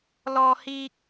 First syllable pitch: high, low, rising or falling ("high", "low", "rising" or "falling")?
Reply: high